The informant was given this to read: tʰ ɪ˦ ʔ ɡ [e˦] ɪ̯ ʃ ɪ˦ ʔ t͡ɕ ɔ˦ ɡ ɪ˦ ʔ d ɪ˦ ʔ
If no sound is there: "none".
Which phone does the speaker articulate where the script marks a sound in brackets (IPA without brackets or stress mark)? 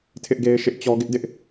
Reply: e˦